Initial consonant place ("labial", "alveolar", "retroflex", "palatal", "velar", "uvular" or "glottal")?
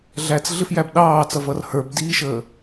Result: alveolar